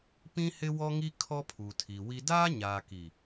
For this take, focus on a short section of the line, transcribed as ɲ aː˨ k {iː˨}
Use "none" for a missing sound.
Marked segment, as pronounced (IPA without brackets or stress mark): i˨